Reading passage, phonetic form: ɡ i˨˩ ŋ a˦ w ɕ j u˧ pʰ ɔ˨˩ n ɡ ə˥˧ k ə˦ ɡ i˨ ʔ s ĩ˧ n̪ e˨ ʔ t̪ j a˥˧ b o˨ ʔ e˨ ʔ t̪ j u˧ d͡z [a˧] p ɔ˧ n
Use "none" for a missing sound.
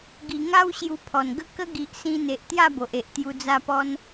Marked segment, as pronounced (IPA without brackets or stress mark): a˧